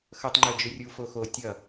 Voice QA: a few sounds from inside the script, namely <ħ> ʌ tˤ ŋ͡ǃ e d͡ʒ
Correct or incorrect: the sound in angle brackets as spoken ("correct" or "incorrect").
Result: incorrect